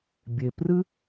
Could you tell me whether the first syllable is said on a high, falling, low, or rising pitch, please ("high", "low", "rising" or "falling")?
low